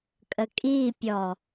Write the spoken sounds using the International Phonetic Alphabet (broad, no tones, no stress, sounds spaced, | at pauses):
kʼ ə kʼ i pʲ ɔ